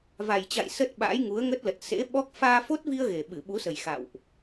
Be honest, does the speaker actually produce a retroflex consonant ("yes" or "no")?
no